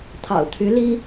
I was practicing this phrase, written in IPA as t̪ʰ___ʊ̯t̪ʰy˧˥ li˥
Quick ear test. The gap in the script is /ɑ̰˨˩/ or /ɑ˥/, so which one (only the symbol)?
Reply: ɑ̰˨˩